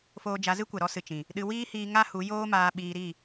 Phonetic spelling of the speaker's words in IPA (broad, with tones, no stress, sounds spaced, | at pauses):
f oː˧ d͡ʒ a˨˦ z ɨ˦ kʷ ɛ˨ ɾ ɔ˦ s ɨ˨ t͡ʃ ĩ˨ | ɗ ɨ˧ w iː˦ h iː˧ ŋ a˦ h u˨˦ j oː˦ m aː˧ ɓ iː˧ ɾ i˦˨